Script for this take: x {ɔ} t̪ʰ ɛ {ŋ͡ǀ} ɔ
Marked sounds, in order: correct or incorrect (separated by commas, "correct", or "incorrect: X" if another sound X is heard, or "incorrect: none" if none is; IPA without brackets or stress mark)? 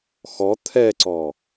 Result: correct, incorrect: ǀ